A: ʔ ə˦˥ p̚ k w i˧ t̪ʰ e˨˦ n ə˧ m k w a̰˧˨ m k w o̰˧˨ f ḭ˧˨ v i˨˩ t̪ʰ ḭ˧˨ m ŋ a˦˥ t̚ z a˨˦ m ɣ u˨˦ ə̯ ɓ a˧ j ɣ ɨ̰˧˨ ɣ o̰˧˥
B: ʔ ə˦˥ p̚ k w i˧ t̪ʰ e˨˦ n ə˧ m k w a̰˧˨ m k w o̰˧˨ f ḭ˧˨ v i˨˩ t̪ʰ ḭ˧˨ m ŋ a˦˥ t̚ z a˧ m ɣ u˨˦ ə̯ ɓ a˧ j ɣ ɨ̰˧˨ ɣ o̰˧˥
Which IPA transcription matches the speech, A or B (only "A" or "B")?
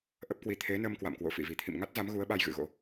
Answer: A